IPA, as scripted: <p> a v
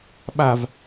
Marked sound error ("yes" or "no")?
yes